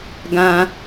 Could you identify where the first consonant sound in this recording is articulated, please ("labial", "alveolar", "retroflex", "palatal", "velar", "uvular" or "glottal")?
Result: velar